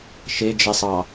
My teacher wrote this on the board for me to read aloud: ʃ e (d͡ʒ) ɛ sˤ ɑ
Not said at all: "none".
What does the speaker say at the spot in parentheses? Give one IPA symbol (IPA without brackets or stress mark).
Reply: d͡ʒ